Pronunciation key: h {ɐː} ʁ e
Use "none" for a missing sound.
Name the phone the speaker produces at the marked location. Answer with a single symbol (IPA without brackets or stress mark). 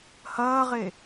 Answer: ɐː